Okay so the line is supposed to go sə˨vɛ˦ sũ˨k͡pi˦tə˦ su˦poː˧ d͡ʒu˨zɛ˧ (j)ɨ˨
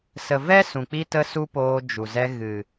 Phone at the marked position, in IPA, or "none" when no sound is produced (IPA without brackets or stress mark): ɣ